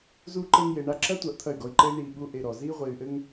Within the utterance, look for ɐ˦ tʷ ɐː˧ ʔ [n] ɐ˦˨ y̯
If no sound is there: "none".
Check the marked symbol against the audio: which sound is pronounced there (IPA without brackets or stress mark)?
t̪ʰ